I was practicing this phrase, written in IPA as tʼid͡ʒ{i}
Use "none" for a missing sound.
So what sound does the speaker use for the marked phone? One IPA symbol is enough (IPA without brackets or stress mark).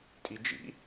ḭ